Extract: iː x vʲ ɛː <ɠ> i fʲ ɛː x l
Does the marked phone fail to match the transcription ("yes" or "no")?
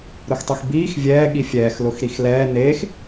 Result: no